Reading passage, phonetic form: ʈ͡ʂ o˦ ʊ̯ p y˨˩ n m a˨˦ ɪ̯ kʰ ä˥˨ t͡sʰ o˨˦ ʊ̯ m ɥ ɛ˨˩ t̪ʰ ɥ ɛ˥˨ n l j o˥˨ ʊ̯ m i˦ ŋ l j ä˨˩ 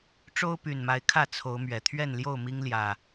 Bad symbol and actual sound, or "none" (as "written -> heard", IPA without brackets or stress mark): none